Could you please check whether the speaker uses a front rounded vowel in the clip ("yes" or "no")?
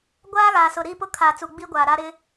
no